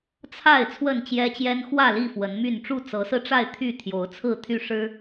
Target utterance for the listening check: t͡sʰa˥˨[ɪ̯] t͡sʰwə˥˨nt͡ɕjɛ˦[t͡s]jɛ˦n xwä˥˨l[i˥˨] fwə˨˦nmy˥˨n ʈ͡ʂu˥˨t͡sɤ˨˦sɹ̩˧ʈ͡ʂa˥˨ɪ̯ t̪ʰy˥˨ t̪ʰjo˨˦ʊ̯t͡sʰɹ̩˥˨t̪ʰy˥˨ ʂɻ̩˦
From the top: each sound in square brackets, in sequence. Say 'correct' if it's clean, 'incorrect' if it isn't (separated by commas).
correct, incorrect, correct